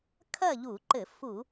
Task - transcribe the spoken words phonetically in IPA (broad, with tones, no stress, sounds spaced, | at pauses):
kʰ ɐ˥˨ ʎ u˧˩˧ ǃ ɘ˧˩˧ f u˧˩˧